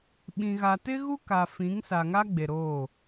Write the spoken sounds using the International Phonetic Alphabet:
ɓĩ˨ɣa˨ tɪ˦ɣu˦ ka˨fĩ˨˦ŋsa˨ ŋa˦ɡ͡be˨ ɾoː˦˨

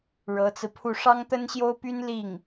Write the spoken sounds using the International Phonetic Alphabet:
ɻɤ˧˥t͡sɹ̩˧pʰu˥˩ ʂɑ˥ŋt̪ə˥nɕjo˥ʊ̯py˥n li˥˩ŋ

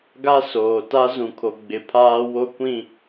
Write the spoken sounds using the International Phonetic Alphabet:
ɡa˦ soː˨ ta˦ zũ˨kʰo˨ ɡ͡bɪ˨pʰaː˦ wo˦kʷĩ˦˨

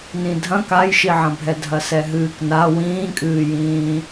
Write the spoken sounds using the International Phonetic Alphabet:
nĩdʱɐ̃ kajʃiʕɐ̃bʱɛ dʱɐsɛɦɨːkna wĩːkʼɨːjĩː

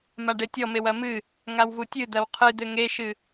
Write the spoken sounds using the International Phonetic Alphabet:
maɖetʲɔmew ɐmɨ | ŋawvutʲɨ d̪ɐwqʰɨd̪ɘ ŋeʃɨ

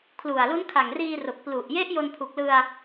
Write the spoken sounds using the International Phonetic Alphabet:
kʰlu˨˩a̯lu˦˥n kʰa˨˩ŋriː˧ro˨˩k̚ plu˨˩ʔje˦˥ʔ jo˧npʰu˨˩k̚lɯ˧a̯

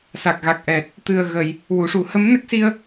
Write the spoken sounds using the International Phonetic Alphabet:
sa˨˩k̚ɣa˨˩k̚ʔɛ˨˩t̚ | t̪ɨ˨˩ə̯ɣə˨˩˨j | wu˨˩˨ʂu˨˩˦ hə˧˥mnə˦˥k̚si˧ə̯

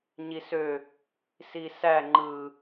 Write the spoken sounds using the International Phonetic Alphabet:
ɲisø | sisæ ŋ͡ǃɯ

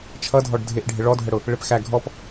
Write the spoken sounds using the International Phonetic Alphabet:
t͡ʃʰʌdʱɔɖ dʱɪʔɖʱɪ ɭɔdʱəɽʊ | ɭɪpxæ ɡʱɔp

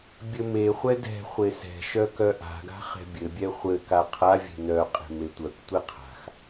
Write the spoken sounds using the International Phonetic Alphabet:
bʲɘmeχʷɛ dɛ̤ χʷesɛ̤ʃœ kœʔa̤ɡa̤ χɛ̤bʲɘbʲɛ χʷɘ kaqʰavʲe̤ nœqʼe̤ metʷœktʷe qʰa̤x

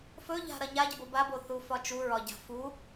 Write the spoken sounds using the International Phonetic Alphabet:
fɵʎa̤ ɾɐɲaɟəbo baboθu fɒt͡ʃu ɹɒɟa̤ fu

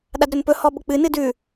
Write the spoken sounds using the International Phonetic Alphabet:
ɗadɾɵnpɵ hɔɓʊk͡pɨ nɨdʉ

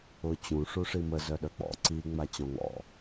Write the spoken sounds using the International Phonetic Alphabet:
ʊ t͡ɕũ ʂuʂimə zœɗœk͡pɔ̰ ǀi ŋ͡mat͡ɕɔ̃ŋɔ̰

